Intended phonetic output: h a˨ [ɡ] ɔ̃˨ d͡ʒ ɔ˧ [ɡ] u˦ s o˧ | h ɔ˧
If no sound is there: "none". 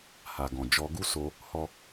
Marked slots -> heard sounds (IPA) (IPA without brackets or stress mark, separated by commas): ɡ, ɡ